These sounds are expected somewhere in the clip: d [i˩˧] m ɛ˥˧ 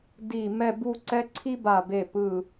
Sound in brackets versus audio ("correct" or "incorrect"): incorrect